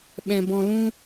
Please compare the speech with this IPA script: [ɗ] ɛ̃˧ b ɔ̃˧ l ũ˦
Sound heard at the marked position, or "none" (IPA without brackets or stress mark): ɓ